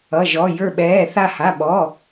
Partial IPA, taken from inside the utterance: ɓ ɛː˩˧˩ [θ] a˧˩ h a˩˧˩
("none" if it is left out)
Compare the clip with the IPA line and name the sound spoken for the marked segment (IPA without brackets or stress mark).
θ